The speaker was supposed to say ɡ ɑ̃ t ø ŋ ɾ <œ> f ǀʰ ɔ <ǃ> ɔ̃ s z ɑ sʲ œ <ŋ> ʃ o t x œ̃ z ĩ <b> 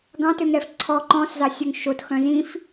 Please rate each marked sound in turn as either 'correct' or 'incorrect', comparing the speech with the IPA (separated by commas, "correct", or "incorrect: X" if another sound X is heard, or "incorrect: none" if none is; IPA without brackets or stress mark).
incorrect: ɛ, correct, correct, incorrect: f